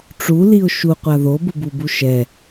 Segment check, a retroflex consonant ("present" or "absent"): present